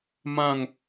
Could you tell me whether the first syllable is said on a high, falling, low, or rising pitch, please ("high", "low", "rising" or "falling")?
falling